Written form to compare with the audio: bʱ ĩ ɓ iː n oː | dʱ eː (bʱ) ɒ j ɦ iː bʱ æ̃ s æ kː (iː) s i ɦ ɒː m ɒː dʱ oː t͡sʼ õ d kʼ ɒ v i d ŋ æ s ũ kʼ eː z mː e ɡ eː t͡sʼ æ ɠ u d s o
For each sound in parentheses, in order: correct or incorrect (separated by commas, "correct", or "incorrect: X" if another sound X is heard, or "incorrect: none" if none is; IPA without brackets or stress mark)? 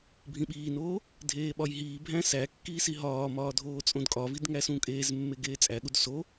incorrect: ɓ, correct